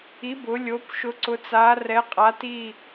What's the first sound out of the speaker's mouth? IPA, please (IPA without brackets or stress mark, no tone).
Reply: i